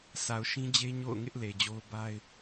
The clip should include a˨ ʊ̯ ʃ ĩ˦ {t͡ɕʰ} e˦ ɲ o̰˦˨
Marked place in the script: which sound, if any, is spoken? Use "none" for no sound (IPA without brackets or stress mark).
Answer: d͡ʑ